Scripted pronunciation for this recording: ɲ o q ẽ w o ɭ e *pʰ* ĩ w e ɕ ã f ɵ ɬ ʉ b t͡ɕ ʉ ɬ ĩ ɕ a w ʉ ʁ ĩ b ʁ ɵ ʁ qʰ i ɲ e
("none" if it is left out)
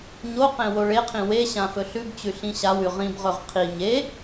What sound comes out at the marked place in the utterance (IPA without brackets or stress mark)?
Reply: qʰ